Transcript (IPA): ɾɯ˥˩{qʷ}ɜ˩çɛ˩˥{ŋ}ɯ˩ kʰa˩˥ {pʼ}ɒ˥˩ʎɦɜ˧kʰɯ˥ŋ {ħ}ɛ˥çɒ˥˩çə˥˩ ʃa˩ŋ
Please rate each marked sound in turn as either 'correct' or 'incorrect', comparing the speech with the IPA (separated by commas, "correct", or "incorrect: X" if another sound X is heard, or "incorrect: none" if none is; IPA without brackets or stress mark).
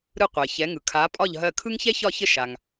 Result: correct, correct, correct, incorrect: ç